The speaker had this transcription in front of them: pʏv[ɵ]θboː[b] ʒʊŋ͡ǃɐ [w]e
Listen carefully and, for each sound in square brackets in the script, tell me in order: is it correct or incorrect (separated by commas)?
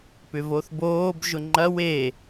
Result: incorrect, correct, correct